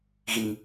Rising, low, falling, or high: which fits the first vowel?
low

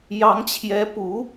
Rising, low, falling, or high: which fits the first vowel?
rising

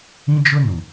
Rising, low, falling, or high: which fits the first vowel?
high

